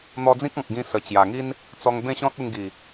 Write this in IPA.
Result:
n̪ ɔ˧ d͡z ĩ˦ k̚ ɔ̃˨ k̚ ɡ ĩ˧ s ə˨˩ t͡ɕ j a˨˩ ŋ i˦ n | t͡s ɔ˧ ŋ b ẽ˥˧ ɕ ɔ̃˦ t̚ u˧ ŋ ɡ i˨˩

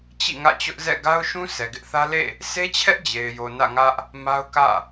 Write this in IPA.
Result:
t͡ɕ ḭ˦˨ ŋ ä̰˦˨ t͡ɕ ʊ˦ ʔ z ɛ̰˦˨ ɡ a˦ ʊ̯ ʃ ũ˦ sʰ ɛ˨ ɡ ɪ˦ ʔ θ ä˦ l ḛ˦˨ | sʰ e˦ t͡ɕʰ ɛ˦ ʔ d͡ʑ e˨ ɪ̯ j o˨ n ä̰˦˨ ŋ ä˦ ʔ | m a˦ ʊ̯ k ä̰˦˨

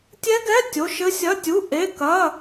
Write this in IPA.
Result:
tʲ ɛ˦˥ ɡ ɛ˧˥˧ tʲ o˧˥˧ ʃ ɘ˦˥ sʲ ɐ˧˥˧ tʲ u˧˥˧ ʔ e˧˥˧ k ɐ˧˥˧

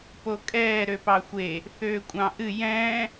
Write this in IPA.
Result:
p o kʼ ɛː ɾ ø p ɑ xʷ e | θ øː kʷʼ ɑ̃ ʔ ɨ j ɛ̃ː

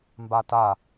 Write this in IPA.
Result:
m b a t a

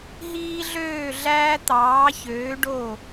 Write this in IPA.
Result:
ɦ iː˧ ɮ øː˧˩ ɮ æː˧ t̪ ɑː˩˧ ç øː˩˧ ɖ o˧˩

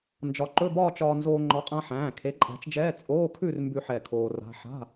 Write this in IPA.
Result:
n d͡ʒ ɒ˨˥ ǃ ɵ˧˥˧ b ɒː˥˧ t͡ʃ ɒː˧ n z oː˧ ŋ͡ǃ ɒ˨˥ qʼ ã˧ ħ æ̃ː˩˧˩ kʰ e˨˥ ǃʼ æ̤˨˥ t͡ʃ d͡ʒ ɛː˧˥˧ t͡sʼ oː˧˥˧ kʰ ʉ˥˧ r m b ʉ˥˧ ħ ɛ˩˧˩ kʰ oː˧ r a̤˧˥˧ ħ a̤˧˥˧

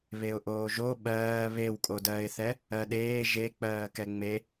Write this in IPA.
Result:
β e ʊ̯ ʔ oː ʒ o ɓ ɜː β e w kʼ o d ɜː ɪ̯ θ ɛ | ɜ ɗ eː ʒ e k͡p ɜː k ɛ ŋ͡m e

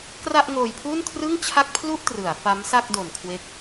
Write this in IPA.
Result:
k r a˥˩ ʔ ŋ oː˧ j pʰ u˥˩ n kʰ r ɯ˥˩ ŋ t͡ɕʰ a˥˩ k̚ pʰ l u˥˩ ʔ t r ɯ˩˦ a̯ f a˦˥ m s a˥˩ k̚ d o˨˩ n kʰ w e˦˥ k̚

